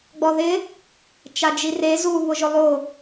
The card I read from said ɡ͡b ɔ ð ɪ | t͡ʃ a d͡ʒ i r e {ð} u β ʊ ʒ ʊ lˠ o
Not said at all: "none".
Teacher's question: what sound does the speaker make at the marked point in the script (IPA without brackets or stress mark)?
z